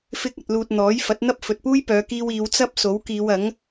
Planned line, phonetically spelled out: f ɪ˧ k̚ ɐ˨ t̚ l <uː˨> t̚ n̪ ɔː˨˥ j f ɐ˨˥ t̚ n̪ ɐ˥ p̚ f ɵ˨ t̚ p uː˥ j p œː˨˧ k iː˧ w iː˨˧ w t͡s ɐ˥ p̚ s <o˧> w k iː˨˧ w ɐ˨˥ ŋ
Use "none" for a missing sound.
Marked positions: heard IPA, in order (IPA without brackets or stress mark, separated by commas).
uː˨, o˨˥